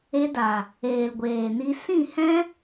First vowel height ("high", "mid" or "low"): mid